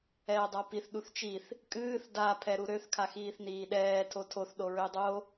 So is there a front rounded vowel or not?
yes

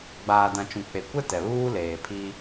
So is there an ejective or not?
no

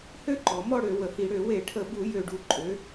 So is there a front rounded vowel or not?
yes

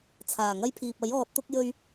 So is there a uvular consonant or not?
no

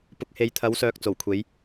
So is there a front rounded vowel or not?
yes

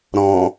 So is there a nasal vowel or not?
yes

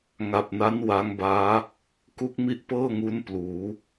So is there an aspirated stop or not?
no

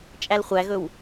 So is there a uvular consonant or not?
yes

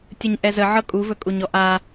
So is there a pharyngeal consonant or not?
yes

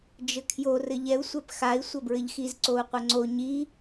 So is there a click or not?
yes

